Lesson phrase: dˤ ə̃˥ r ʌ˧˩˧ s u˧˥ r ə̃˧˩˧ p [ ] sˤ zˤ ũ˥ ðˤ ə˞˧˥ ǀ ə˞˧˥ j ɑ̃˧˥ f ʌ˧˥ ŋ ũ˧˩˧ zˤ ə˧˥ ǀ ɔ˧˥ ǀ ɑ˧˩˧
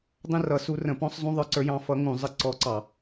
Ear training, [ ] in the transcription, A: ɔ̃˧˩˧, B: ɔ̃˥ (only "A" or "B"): B